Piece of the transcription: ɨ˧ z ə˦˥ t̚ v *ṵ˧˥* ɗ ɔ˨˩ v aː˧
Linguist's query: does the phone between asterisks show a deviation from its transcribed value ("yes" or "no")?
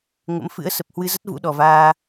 no